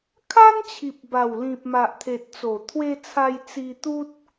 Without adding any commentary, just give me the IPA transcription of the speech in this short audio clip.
kʰa˦nt͡ɕʰi˨p̚ba˨˩wlĩ˨p̚ ma˨ʔt̪ʰe˨t̚t͡so˨˩ t̪ʰwe˧t͡sʰa˧j t͡si˧t̪u˦t̚

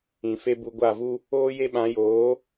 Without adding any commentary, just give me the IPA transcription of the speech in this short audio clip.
ĩ˨fe˦bu˧ ɡʷa˦˨vu˦ | oː˦je˦ɓã˨˦ joː˨˦

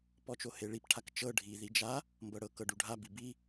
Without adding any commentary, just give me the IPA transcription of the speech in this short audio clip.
pɔt͡ʃoheɭip ʈʰakt͡ʃɤ ɖʱi ðid͡ʒa | mbɤɽɤ kɤɖuɖʱa bibi

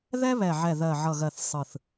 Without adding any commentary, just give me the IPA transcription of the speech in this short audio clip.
ðɛ˥βɛ˨˩ʕɛ˨˩ ðɜ˨˩ʕʌ˨˩ɣɜ˨˩θ sˤɯ˨˩θ

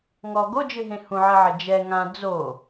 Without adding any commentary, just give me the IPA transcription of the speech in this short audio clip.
ŋɔ ɡod͡ʒɨɦẽ hũʕɘʕɘ d͡ʒɛ ŋã d͡zo

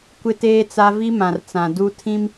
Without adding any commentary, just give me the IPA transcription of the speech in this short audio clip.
kʷɪ˦teː˦t͡sa˦ vi˦mã˨rt͡sã˨ du˦tʰĩ˦m

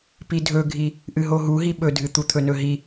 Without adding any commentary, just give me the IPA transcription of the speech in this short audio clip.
pidʱɵɡʱi | ʔɨɦoɦuɦi ɓɵdʱɨt̪u t̪ʰɵnɵɦi

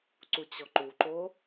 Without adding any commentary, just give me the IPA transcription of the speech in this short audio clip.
ǀut͡ɕɔǃuǃo

